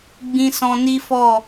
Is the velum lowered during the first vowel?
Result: yes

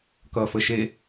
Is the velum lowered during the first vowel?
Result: no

